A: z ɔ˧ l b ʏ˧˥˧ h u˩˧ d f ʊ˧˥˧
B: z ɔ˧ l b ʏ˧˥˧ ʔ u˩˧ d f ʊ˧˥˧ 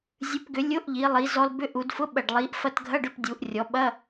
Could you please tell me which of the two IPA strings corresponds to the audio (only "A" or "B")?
B